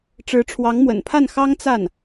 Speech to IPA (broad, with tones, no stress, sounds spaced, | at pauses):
ʈ͡ʂ ɻ̩˧˥ ʈ͡ʂʰ w ɑ˧˥ ŋ m w ə̰˨˩ n pʰ a˥˩ n x ɑ˥ ŋ t͡s a˥˩ n